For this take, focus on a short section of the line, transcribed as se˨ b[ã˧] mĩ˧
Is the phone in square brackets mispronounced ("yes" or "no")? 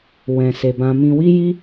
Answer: no